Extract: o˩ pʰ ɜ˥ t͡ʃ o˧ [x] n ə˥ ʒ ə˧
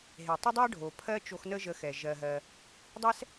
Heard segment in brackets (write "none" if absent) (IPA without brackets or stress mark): x